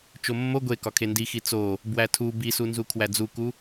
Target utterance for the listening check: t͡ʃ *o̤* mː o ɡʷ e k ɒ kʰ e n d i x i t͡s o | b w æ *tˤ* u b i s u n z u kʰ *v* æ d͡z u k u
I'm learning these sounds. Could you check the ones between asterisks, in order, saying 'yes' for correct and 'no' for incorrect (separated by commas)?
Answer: no, no, no